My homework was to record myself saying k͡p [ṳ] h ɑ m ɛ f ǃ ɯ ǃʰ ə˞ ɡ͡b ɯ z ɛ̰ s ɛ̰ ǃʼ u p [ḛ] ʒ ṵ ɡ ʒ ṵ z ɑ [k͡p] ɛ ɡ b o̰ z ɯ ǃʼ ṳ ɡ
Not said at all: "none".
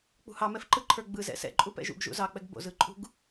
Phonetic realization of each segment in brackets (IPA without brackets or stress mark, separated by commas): ṳ, ɛ̰, k͡p